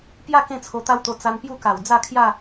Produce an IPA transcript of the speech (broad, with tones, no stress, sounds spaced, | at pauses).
p j a˥˧ k ẽ˥˧ t͡sʰ o˧ t̪ a˦ w t̪ o˧ t͡s a˧ n p j u˥˧ k a˨˩ w d͡z a˥˧ kʰ j a˥˧